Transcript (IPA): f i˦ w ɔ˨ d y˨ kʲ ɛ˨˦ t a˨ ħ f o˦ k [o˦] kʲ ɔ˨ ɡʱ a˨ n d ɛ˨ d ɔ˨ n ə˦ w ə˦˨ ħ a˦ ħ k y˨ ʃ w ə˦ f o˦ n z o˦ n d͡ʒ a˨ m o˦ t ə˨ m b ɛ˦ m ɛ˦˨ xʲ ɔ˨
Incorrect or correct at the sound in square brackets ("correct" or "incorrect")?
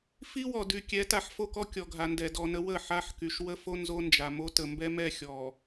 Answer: incorrect